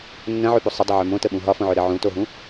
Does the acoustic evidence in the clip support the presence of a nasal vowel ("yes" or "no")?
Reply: yes